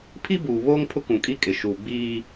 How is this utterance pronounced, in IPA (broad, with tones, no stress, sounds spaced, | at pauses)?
pʰ i˦ b uː˨ β oː˦ ŋ pʰ ʊ˦ k ũ˨ kʼ i˦ kʼ ɪ˨ ʃ uː˨ ɡ͡b iː˦